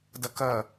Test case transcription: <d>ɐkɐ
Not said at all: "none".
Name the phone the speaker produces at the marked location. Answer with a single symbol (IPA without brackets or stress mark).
d